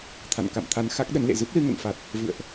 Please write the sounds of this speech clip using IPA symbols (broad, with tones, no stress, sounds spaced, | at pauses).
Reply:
t̪ʰ a̰˧˨ n k a̰˧˨ m t̪ʰ a˨˦ n x a˦˥ k̚ ɗ ə˨˦ n l ḛ˧˨ z ɨ˦˥ p̚ l ɨ˧ ŋ ə̰˧˨ n f a˨˩ t̚ | v ɨ̰˧˨ ə̯ ʔ